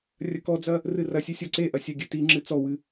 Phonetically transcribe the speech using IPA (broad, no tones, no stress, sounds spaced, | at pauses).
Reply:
rʲ ɐ k ɔ d͡z ɐ | r ɨ r ɐ sʲ ɨ sʲ ɔ ǀ e ʔ ɐ sʲ a ɡʲ ɨ t i ŋ͡ǁ ɨ t͡s ɔ w ɨ